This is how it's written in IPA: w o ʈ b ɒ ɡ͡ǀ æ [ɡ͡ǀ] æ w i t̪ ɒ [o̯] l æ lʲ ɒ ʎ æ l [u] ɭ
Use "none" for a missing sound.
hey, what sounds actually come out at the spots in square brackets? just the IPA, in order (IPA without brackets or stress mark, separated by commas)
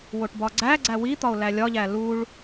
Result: ɡ͡ǀ, o̯, u